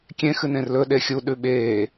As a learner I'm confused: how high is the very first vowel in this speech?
mid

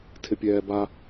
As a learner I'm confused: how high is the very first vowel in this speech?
high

